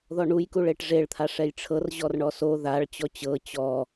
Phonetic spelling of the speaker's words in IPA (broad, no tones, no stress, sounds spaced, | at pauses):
ð ɔ ɳ u j k u ɭ e ʈ ʐ e ɭ t̪ʰ a ʂ ɛ j ʈ͡ʂʰ ɤ r ʑ ɔ r ɳ ɔ s o ð a ɭ t͡ɕ ɔ t͡ɕ ɤ t͡ɕ ɔ